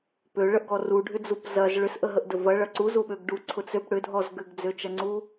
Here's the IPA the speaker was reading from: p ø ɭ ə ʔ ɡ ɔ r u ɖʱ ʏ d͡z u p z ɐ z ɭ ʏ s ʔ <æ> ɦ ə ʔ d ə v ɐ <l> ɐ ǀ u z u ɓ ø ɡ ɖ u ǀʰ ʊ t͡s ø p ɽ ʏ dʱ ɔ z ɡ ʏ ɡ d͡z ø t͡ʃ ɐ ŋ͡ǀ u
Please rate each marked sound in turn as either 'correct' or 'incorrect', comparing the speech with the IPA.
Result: incorrect: ə, incorrect: ɭ

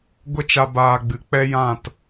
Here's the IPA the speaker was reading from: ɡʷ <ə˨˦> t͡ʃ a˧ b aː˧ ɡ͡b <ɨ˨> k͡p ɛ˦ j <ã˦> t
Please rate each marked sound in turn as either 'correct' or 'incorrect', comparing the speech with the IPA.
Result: incorrect: ə˦, correct, incorrect: ã˦˨

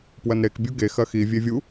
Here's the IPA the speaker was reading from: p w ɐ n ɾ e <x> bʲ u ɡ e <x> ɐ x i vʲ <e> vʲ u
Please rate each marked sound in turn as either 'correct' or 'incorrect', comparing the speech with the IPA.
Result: incorrect: k, correct, correct

